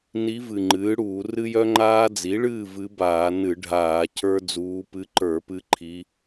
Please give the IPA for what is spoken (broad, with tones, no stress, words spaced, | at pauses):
ni˧˥vɨ˨˩ ŋ͡ǃɨː˩˥ɽuː˧˩˧ rɨ˥jœ˥ ŋ͡ǃaː˥ d͡zi˩˥ɭɨː˥˨ vɨ˧˥baː˧˩˧nɨ˧˩˧ɖʱaː˧˩˧ cʰə˞˥d͡zuː˧˥ pɨ˧˥ǃə˞˧˩˧ pɨ˥ǃʰi˧˥